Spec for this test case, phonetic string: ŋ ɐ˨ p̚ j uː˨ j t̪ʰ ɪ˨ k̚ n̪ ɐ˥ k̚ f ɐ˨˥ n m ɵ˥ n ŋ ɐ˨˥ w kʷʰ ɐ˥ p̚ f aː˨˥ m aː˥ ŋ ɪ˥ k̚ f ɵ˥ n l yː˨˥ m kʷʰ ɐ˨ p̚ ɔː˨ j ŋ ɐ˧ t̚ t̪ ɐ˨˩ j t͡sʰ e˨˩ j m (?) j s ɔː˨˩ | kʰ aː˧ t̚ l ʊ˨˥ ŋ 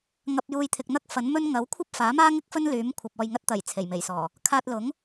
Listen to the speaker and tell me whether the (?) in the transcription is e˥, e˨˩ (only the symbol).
e˨˩